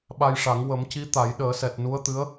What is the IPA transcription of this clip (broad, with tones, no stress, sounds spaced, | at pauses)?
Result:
ɓ a˧ j ʂ a˨˩˦ ŋ w ə˨˩˦ m c i˧˥ t̪ a˨˩˦ j ɗ əː˨˩˦ s ɛ˨˩ t̚ n u˧˥ ə̯ t̪ ɨ˧˥ ə̯